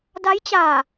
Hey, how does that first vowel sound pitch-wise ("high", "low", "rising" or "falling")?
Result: rising